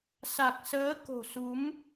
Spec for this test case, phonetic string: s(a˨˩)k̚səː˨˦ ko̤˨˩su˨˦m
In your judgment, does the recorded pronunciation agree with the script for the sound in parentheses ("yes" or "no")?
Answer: yes